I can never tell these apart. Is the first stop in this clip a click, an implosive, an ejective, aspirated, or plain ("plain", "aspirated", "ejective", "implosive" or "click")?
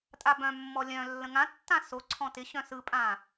ejective